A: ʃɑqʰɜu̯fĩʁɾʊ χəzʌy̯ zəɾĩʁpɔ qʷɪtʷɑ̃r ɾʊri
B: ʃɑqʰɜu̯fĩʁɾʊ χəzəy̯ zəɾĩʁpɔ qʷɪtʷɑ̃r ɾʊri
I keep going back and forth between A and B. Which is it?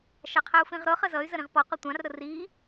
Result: A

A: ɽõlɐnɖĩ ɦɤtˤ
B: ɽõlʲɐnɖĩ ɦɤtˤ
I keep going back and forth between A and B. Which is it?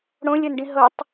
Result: B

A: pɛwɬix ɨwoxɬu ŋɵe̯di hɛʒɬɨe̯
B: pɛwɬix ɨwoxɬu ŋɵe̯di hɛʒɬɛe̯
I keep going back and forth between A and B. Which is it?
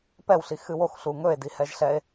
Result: B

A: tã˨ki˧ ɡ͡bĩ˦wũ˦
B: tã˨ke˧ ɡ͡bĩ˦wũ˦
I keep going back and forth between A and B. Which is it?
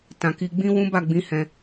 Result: A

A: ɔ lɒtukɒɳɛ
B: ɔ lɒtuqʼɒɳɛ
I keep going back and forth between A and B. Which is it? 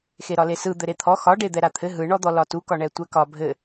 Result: A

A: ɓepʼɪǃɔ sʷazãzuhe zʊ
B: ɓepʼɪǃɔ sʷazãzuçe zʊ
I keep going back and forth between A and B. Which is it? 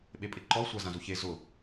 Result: B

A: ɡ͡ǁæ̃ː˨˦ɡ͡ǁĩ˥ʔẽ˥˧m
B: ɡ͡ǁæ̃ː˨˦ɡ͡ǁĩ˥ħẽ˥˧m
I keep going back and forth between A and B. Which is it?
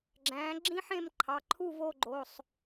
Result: B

